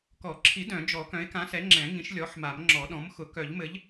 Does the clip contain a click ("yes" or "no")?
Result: yes